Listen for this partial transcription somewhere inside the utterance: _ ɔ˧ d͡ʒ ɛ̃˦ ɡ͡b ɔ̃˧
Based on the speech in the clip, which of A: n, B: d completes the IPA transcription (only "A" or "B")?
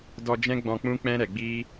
B